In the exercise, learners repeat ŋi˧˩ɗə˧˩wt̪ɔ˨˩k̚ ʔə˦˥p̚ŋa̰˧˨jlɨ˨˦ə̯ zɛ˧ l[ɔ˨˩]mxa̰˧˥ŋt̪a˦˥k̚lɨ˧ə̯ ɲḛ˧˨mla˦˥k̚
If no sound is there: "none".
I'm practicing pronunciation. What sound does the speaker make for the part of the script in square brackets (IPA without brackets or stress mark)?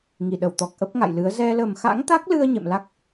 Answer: ə˨˩